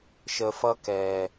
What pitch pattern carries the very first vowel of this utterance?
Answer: low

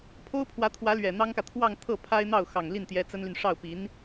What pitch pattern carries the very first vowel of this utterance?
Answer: high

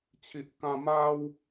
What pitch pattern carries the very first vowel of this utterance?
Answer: low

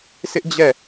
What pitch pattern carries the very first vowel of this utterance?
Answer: high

